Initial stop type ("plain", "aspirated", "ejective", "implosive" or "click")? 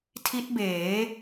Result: aspirated